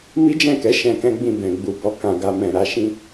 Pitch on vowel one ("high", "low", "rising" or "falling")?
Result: high